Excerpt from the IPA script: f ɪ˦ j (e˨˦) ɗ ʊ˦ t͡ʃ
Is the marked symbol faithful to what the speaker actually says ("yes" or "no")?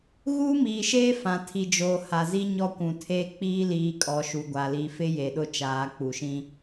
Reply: no